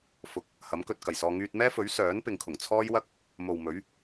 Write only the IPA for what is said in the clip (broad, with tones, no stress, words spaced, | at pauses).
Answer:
fʊ˨k̚ | hɐ˨˥mkɵ˧t̚kɐ˨˩jsɔː˧ ŋyː˧t̚mɛː˥fɵ˨˥ɥ sœː˨˥npɪ˨ŋkʰʊ˨˩ŋ t͡sʰɔː˥jwɐ˥k̚ | mo˨wmɵ˨˥ɥ